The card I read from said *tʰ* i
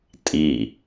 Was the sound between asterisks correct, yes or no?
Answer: no